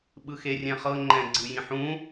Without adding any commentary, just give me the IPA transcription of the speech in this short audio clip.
ɓ ɯ x e rʲ ɛ̃ χ ɤ ŋ͡ǃ ɛ̃ ɡ͡ǀ ɯ j ĩ ħ ũ

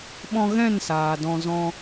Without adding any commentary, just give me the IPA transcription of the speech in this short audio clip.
ɓ ɔ̃˧ ɣ ɛ̃˦˨ n s aː˨ d ɔ̃˧ z ɔ̃˦

